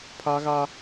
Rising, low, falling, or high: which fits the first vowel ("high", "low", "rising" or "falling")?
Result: high